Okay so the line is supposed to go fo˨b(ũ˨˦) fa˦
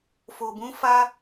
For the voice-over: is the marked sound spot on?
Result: yes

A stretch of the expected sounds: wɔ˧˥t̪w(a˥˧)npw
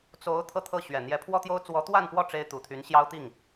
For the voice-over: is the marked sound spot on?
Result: yes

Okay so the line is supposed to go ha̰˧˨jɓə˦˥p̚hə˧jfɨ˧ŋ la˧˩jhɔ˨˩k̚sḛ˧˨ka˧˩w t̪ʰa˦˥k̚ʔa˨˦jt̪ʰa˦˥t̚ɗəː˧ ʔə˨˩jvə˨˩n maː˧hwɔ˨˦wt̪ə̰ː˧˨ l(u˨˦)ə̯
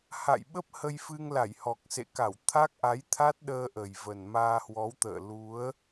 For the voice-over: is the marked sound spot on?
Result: yes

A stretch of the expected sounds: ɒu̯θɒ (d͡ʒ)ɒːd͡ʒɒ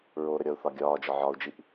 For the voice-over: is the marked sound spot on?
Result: no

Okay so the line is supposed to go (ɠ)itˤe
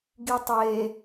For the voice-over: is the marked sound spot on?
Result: no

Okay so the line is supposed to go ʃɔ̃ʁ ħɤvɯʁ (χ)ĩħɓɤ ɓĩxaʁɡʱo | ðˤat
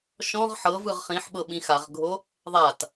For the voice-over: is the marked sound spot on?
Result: yes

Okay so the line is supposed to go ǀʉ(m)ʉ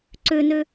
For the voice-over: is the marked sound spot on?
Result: no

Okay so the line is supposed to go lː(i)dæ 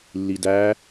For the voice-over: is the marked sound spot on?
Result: yes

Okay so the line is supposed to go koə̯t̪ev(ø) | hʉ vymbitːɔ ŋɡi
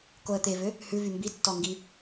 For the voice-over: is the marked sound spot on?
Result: yes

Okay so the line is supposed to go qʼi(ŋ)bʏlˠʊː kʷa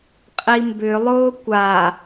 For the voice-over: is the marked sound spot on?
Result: no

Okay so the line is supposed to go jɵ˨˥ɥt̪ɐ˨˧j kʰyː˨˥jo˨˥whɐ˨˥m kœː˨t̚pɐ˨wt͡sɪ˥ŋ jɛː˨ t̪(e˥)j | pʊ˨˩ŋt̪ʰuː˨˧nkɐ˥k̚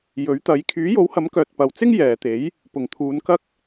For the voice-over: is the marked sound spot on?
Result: no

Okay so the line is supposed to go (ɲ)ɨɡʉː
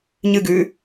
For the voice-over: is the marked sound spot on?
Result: yes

